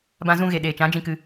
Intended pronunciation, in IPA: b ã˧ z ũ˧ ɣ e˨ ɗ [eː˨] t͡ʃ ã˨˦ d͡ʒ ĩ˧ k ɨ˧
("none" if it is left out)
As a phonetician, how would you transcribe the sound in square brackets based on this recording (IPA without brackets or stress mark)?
eː˨